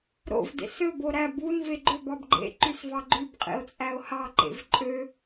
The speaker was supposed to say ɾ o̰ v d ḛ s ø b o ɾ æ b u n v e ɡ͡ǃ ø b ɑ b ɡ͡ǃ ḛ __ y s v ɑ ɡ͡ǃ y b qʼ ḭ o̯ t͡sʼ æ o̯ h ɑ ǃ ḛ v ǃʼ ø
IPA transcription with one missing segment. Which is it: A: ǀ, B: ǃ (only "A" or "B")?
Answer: B